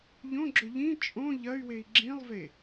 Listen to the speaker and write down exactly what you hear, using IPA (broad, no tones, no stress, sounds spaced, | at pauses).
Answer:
ʎ õ ɡ͡ǁ ɵ ʎ ĩ t͡ʃʼ õ ʎ ɐ y̯ w e i̯ ɡ͡ǁ ĩ lˠ v e